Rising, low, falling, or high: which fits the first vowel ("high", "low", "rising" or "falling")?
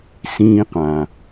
high